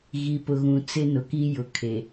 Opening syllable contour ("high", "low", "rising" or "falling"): low